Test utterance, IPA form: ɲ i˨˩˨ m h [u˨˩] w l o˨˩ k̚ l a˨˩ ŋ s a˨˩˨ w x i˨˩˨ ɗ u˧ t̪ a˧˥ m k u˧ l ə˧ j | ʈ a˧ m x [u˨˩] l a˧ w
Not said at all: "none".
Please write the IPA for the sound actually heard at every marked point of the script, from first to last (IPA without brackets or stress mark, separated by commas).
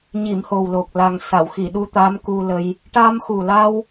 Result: o˨˩, u˨˩